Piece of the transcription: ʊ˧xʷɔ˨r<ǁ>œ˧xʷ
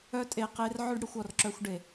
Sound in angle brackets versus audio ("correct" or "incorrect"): correct